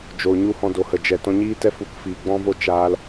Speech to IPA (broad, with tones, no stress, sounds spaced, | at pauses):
d͡ʒ o˨ ɲ u˦ h ɔ̃˧ d o˨ h ə˨ d͡ʒ ɛ˨ t ɔ̃˧ ɲ iː˦ t ɛ˦ f u˧ k f iː˨ ɡ͡b ɔ̃˦ v o˦ t͡ʃ aː˧ l